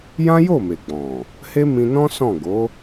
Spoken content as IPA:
j ã˦ j o˦˨ m e˨ ɡ͡b ɔ̃˨ | h e˦ m ĩ˧ n ɔ̃˦ s ɔ̃˦˨ ɡ o˨˦

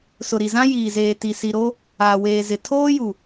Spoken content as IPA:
s ʊ˨ ɾ i˨ z ã˦ j iː˨ z eː˨ t i˨ s i˨ ɾ o˦ | aː˨ w eː˨ z ɪ˨ tʰ oː˦ j u˨

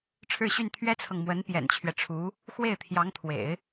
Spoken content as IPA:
ʈ͡ʂʰ ɻ̩˥˧ ɕ y˥˩ n t̪ʰ ɥ ɛ˥ t͡sʰ ɤ˨ ŋ m w ə˧˥ n p j ɛ̰˨˩ n t͡ɕʰ ɥ ɛ˦ ʈ͡ʂʰ u˧˥ | x w e˥˩ ɪ̯ t̪ʰ j ɑ˧˥ ŋ t̪ʰ w ḛ˨˩˦ ɪ̯

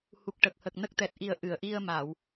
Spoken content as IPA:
h u˨˩ k̚ ʈ ə˨˩ k̚ h ə˨˩ k̚ n ə˦˥ k̚ t̪ ɛ˨˩ t̚ ʔ i˨˩ ə̯ ʔ ɨ˨˩˨ ə̯ ʔ i˧ ə̯ m a˨˩˨ w

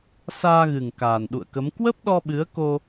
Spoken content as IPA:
s aː˧ ɣ ɨ˨˩ ŋ k aː˨˩ n ɗ ṵ˧˨ ə̯ k ə˨˦ m k w ə˦˥ p̚ ɗ ɔ˧ ɓ ɨ˨˦ ə̯ k o˧

